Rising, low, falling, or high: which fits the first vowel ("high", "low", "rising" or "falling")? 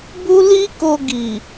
high